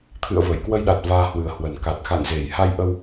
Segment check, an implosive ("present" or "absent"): present